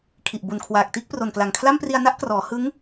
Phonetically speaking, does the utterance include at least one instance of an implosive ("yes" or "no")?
no